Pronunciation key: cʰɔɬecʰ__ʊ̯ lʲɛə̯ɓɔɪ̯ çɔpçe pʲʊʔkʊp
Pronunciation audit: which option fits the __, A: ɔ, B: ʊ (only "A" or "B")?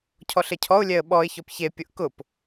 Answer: A